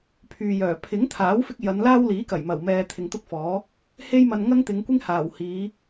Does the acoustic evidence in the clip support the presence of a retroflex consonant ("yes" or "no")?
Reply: no